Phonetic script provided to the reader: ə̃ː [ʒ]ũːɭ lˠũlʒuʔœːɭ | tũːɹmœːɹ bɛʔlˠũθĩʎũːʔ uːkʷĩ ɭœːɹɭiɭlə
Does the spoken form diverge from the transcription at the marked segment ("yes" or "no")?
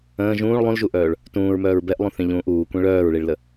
no